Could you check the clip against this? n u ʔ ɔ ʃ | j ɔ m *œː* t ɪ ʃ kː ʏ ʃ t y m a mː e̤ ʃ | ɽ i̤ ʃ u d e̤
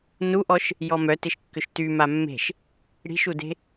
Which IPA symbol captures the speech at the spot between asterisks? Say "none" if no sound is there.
œ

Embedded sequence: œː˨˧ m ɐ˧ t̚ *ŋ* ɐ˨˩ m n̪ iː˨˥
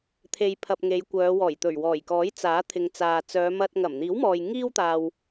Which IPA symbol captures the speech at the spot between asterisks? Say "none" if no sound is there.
ŋ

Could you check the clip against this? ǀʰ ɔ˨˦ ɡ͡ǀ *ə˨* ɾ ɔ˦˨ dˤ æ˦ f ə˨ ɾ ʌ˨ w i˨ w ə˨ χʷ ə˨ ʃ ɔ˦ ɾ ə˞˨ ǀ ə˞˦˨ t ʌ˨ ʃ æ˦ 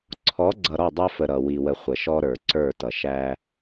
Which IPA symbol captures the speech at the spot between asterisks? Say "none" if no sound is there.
ʌ˨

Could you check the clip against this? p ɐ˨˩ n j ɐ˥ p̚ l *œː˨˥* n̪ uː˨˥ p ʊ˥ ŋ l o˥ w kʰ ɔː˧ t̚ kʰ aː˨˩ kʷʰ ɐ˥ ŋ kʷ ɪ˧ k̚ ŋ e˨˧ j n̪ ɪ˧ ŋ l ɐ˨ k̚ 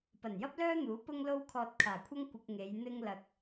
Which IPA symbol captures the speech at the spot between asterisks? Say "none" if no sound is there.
œː˥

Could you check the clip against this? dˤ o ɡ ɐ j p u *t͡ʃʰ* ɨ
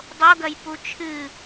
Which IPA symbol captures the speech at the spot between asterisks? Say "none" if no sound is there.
t͡ʃʰ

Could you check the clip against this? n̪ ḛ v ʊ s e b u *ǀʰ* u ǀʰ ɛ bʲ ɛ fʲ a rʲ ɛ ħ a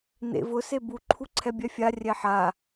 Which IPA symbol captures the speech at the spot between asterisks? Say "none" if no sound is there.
ǃʰ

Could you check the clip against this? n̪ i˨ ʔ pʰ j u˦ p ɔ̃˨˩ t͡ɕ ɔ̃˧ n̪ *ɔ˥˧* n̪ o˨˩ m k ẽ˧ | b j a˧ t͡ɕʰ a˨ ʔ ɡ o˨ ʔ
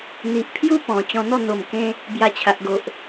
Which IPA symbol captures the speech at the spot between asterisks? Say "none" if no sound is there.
ɔ˥˧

